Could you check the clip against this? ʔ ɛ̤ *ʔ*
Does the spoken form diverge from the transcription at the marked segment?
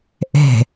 yes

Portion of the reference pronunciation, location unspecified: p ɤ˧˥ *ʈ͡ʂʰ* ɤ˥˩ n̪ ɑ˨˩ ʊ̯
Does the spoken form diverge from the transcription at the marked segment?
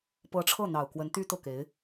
no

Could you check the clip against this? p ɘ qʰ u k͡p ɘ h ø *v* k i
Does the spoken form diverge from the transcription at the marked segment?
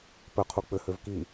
no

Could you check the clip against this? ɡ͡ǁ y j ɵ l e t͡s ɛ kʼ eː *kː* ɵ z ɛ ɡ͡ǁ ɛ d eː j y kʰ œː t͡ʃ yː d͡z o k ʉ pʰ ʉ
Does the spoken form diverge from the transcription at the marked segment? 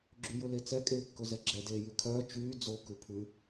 no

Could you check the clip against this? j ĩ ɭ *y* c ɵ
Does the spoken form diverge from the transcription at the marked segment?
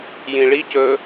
yes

